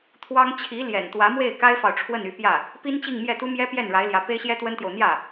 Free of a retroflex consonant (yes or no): no